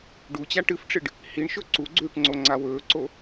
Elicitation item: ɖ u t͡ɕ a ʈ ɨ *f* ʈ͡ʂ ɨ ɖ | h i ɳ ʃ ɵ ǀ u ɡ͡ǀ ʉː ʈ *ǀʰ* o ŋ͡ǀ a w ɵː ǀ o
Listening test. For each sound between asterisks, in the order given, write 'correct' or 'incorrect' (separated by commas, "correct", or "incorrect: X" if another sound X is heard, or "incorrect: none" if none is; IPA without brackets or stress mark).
correct, incorrect: ŋ͡ǀ